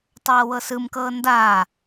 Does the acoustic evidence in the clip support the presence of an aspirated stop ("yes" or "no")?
no